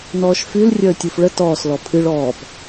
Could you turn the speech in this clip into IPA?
nɔːʃfyl rʲəːtʲufɭə tɔːslɔ pʰɨɭ ɔːp

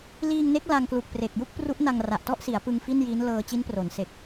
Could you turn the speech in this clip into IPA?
liː˧ŋne˦˥k̚ la˧ŋklu˨˩k̚pre˨˩k̚ ju˥˩k̚pru˦˥ʔna˧ŋ ra˨˩ʔtɔ˥˩ʔsi˩˦a̯pɯ˧ŋ fi˥˩nji˦˥nlɤː˧ t͡ɕi˦˥npro˩˦nse˨˩k̚

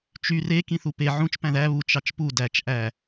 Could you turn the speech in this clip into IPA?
t͡ʃy re kĩθupe ʕũt͡ʃ pæ̃ðæ βut͡ʃ ɑt͡ʃpu dæt͡ʃ ʔæ

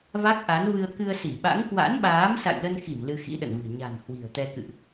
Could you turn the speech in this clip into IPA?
va˦˥k̚ʔa˨˦nvɨ˧ə̯ kɨ˧ə̯si˧˩ɓa̰˧˥ŋ kwa̰˧˥nɓaː˨˦m sa̰˧˨jlə˧nxi˧˩m lɨ˧xḭ˧˥ɗə̰˧˨nvɨ̤˨˩ ɲa̤˨˩n hwi̤˨˩ə̯t̪ɛ˧ kɨ̰˧˨ʔ

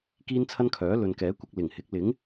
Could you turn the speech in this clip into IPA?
kiː˥nt͡sʰɐ˥nkʰœː˨˥ lɵ˨nkɛː˨˥kʷɐ˧k̚ lɪ˨˩ŋhɪ˨˥k̚ lɪ˨˥ŋ

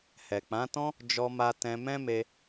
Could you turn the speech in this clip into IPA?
hɛ˨ k͡pã˨˦tɔ̃˦ | d͡ʒɔ˧ma˧ tɛ̃˧ mɛ̃˦me˧

